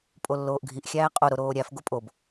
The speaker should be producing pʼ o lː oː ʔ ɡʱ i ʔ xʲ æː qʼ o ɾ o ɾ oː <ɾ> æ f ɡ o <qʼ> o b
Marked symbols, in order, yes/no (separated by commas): no, no